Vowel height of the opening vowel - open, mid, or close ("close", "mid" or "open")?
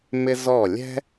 close